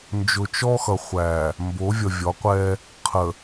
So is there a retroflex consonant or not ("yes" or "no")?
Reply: no